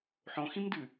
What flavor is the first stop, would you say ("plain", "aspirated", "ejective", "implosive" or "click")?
plain